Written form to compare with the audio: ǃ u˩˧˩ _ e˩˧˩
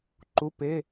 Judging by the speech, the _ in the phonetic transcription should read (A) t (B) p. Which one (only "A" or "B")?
B